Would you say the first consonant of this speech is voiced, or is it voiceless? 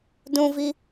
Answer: voiced